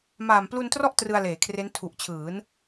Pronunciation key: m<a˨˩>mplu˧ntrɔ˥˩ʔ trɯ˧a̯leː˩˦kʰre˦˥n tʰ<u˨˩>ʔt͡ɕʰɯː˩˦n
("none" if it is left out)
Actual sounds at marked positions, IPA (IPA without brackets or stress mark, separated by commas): aː˨˩, u˨˩